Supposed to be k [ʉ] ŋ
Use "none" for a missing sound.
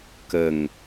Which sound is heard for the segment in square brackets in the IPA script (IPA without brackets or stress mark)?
ə